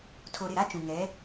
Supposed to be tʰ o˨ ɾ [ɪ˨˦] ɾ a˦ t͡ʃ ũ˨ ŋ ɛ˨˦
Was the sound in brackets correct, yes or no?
no